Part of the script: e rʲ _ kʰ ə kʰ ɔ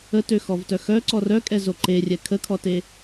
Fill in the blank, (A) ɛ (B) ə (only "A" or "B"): A